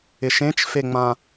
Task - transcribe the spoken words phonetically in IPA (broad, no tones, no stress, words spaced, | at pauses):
ɪʃẽt͡ʃfeŋ͡mã